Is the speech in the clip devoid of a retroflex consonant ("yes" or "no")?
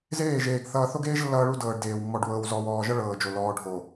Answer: no